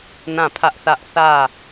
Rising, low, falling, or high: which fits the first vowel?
falling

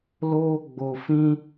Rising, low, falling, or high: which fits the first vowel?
high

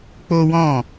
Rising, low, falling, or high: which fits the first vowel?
high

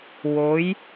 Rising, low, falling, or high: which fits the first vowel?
rising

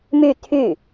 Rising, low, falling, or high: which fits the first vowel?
falling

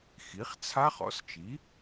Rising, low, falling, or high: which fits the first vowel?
rising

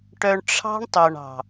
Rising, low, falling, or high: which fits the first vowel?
low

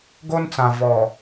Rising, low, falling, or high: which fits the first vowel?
high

